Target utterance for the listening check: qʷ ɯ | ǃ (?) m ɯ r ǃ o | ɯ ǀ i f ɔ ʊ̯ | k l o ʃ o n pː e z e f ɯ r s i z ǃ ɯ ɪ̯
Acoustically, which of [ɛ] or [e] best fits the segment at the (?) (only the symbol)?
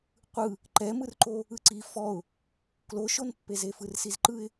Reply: ɛ